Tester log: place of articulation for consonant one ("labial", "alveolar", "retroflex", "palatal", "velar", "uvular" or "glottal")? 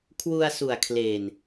velar